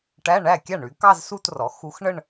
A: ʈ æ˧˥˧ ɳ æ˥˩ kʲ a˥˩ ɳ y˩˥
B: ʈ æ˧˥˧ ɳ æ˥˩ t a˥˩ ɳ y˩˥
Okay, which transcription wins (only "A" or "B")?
A